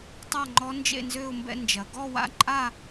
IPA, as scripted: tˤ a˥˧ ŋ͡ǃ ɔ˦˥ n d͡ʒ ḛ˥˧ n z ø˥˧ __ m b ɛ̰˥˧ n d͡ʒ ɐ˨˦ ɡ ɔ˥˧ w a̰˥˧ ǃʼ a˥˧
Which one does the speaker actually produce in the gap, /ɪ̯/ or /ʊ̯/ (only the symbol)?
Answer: ʊ̯